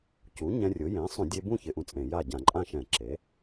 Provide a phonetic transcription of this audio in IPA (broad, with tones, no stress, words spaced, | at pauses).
cu˩˥ɲɛ̃˧ rʲʊ˩˥ jẽ˩˥sˤũ˧˩˧dʲe˧bũ˥˨ çɪ˧ʔũ˧t͡sʼẽ˧˩˧ja˥˨ ɟã˧˩˧ǃʼã˥˨ʃɛ̃˧˩˧ǁe˩˥